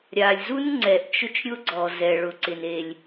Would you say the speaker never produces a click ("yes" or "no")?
no